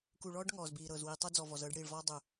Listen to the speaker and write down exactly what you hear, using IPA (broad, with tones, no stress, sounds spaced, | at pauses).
k u˨ ɭ ɔː˦ ɖ ŋ ɔː˨ z b iː˨ ɾ ɤː˨ z w iː˨ tˤ u˦ d͡z ɔ˨ v ɔ˨ z ɤː˦ ɖ ɽ iː˨ ɭ v ɔː˦ dˤ u˨